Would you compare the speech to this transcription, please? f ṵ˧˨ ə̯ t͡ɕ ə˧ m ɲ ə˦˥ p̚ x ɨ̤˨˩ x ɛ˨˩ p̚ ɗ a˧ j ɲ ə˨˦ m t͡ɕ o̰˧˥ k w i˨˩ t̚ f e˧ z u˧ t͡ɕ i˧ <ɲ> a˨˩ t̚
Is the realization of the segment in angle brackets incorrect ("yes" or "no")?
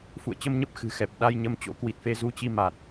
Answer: yes